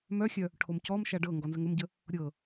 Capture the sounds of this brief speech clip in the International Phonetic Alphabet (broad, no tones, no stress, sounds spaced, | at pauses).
m œ xʲ œ | ʈʰ o m c ɔ m ʃ a ɖ ɤ ŋ ɡ ɔ n z ə ŋ ə m ɟ ə | ɾʲ ɤ